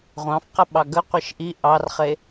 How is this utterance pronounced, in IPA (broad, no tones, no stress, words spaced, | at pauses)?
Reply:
ʁʷɑ̃f qəɓɑɡə qʷeʃʔi ʔɑrχe